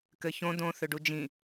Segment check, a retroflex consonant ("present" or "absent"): present